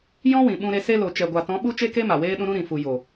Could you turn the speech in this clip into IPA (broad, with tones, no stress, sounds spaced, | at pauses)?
j ɔ̃˦ w ĩ˨ ɓ ũ˧ ɾ e˧ s e˧ l o˨ t͡ʃ ɛ˨ ɡʷ a˨ t ɔ̃˨˦ ɓ u˦ t͡ʃ e˦ k e˦ m a˨ w eː˦ ɗ ũ˦ ɾ ũ˦ ɾ ĩ˨ f u˨ j o˨